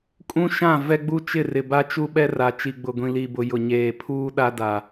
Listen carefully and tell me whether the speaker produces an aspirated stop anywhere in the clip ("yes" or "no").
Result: yes